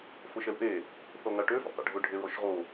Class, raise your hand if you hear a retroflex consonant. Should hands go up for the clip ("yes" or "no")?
yes